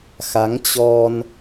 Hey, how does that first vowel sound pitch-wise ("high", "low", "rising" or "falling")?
rising